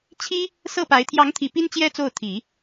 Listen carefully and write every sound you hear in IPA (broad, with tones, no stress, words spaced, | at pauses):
t͡ɕʰi˥ | sɤ˥˩pa˧˥ɪ̯ t̪ʰjɑ˧˥ŋt̪ʰi˨˩ pi˥nt͡ɕjɛ˥ t͡so˥˩ʊ̯t̪ʰi˨˩˦